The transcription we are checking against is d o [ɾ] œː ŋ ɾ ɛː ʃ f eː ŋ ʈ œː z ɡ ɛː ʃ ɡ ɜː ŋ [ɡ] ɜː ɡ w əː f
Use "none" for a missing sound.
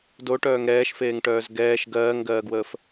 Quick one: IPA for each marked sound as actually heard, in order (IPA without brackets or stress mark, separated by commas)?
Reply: ʈ, ɡ